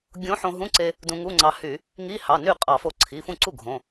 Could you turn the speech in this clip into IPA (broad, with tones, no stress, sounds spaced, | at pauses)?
ɡʲ õ˧˥ ħ õ˧ ɦ ũ˧˥˧ ǀ e˧ | d ũ˧ ŋ u˧˥˧ ŋ͡ǀ ɑ˧ h y˧˩˧ | ŋ i˧˥˧ h ɑ˩˧˩ n y˥˩ qʼ ɑ˧˩˧ f o˧ ǀʰ i˩˧˩ f ũ˥˩ ǀ u˥˩ ɡʱ õ˩˧˩